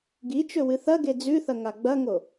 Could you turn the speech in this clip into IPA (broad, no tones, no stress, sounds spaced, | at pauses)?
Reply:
ɡ i t͡ʃ ɵ w ɨ θ ɐ ɡ e d͡z ʉ θ ɐ ŋ a ɡ͡b ɐ ŋ o